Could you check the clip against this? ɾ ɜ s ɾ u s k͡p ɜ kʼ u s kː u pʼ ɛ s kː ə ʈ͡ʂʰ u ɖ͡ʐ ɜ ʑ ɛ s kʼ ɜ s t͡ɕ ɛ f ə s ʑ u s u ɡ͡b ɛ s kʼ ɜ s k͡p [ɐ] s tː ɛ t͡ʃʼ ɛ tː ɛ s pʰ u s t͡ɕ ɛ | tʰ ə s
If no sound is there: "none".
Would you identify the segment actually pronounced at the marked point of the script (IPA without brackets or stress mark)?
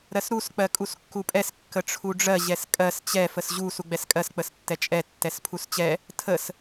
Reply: ə